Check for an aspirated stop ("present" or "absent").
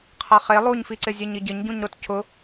present